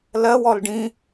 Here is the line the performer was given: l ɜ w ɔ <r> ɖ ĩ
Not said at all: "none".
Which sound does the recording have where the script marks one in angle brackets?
l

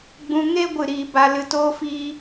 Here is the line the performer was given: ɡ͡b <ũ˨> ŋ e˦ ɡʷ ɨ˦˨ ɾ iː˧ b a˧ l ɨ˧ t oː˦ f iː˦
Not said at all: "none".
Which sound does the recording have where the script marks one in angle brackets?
ũ˧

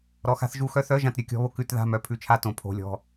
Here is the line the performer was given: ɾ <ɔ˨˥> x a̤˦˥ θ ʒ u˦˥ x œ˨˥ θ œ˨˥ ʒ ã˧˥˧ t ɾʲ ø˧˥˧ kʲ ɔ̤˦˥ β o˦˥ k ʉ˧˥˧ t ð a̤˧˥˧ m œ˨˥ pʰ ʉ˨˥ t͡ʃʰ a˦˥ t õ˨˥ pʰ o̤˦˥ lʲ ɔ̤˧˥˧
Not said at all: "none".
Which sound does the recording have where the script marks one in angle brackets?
ɔ˨˥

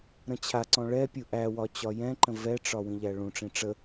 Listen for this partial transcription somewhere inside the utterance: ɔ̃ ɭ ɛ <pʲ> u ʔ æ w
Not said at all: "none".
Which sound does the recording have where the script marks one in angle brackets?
pʲ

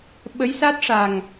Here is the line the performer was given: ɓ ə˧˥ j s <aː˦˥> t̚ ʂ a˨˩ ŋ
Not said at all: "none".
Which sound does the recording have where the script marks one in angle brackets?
a˦˥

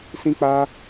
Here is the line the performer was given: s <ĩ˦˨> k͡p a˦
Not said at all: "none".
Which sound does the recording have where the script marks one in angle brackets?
ĩ˦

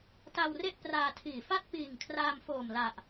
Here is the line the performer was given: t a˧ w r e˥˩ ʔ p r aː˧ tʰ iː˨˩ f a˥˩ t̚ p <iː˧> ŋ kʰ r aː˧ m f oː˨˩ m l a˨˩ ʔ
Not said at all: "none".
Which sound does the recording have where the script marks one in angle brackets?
iː˨˩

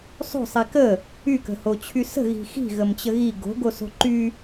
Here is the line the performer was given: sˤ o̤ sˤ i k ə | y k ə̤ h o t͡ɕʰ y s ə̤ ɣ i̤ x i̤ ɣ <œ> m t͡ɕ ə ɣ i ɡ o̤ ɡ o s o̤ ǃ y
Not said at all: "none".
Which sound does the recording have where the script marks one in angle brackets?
ə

